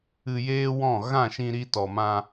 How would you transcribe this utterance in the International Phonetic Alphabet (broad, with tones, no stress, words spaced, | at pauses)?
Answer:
ɨ˧jeː˦wɔ̃˦˨ ɣã˦˨ʃĩ˧ɾi˧ tɔ˨mã˧